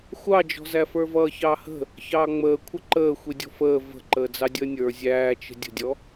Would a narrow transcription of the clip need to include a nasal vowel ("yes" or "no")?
no